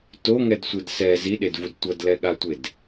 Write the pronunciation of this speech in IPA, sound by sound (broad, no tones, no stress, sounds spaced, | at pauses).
t o ŋ ɛ d sʷ ɯ d s ɛ z i ɗ e d v u d tʷ ʌ d l ɛ ɠ a tʷ e d